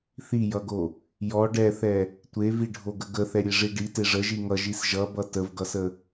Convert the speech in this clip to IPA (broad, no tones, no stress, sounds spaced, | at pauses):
θ i j ʌ ɡ o | j ɔ ɖ ɛ θ ɛ | tʷ e v i ɖʱ o ɡ ə ɡ ə θ ɛ ɾʲ e ʐ i ɖ i t e ʐ ə ʒ i ŋ ʌ ʒ i s ʒ ʌ b ʌ t ə v ɡ ʌ s ə